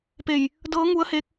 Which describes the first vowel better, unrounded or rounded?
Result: unrounded